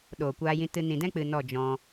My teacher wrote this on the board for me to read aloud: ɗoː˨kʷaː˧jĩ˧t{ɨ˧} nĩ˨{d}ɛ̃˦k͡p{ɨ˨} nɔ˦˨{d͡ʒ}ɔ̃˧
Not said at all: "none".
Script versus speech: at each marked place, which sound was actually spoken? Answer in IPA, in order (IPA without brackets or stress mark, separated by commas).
ɨ˧, d, ɨ˨, d͡ʒ